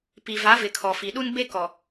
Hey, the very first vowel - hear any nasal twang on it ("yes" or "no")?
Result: no